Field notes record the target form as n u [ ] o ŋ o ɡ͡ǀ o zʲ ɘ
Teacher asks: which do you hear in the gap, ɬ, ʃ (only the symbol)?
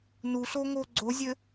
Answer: ɬ